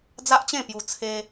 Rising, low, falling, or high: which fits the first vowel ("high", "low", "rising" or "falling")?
high